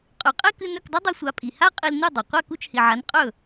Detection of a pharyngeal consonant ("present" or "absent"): present